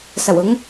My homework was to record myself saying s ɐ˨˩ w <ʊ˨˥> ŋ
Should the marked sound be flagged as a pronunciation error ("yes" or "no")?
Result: no